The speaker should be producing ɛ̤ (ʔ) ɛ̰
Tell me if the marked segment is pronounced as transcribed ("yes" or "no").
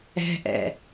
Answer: yes